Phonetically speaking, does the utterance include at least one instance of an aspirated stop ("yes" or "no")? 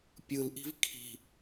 yes